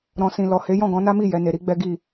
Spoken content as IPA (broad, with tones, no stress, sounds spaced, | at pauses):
ɾ ɔ̃˨ s ĩ˨ l ɔ˨ h e˨˦ j ɔ̃˦˨ ɡ ɔ̃˨˦ n a˦ m i˦˨ j ɛ˨˦ n e˧ ɾ i˦ ɡ͡b ɛ˦ ɡ i˦˨